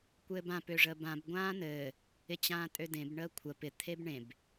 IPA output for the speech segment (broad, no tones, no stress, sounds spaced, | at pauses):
kʷ ɘː b ã p ø ʐ əː b ã b ɡʷ ãː n ɘː | ɪ t͡ɕ ãː tʼ ø d ẽ b ɳ əː kʷʰ ə p ɪ t̪ʰ e b ɳ ẽ b